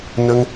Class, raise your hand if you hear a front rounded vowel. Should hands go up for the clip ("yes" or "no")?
no